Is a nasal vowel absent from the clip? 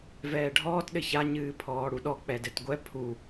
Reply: yes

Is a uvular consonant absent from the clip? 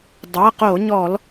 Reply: no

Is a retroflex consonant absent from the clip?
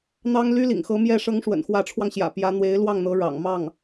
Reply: no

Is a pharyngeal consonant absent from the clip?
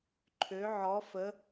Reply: no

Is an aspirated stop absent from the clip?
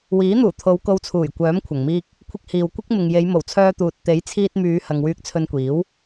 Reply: no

